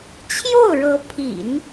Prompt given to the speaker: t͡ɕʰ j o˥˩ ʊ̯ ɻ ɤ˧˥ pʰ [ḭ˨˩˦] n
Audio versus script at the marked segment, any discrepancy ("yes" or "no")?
no